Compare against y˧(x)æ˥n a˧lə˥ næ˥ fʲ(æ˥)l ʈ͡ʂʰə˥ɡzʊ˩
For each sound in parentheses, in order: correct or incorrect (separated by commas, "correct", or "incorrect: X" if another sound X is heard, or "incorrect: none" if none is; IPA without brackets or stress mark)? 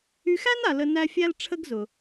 correct, correct